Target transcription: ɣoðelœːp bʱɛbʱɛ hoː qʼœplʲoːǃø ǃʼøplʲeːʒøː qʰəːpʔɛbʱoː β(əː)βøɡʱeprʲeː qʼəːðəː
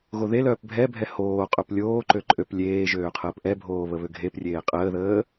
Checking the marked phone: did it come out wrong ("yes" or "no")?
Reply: yes